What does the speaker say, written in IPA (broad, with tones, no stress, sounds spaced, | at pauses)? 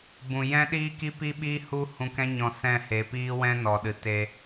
b ũ˨ j ɛ̃˦ ɗ iː˦ k i˦ p i˦ ɓ iː˦ h u˦ h ũ˧ k ɛ̃˦ ɲ ɔ̃˧ s ɛ̃˦˨ h e˨˦ p iː˦ w ɛ̃˦ n ɔ˨ ɗ ɨ˨ t e˧